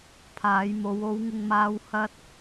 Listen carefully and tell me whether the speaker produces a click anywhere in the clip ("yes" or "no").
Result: no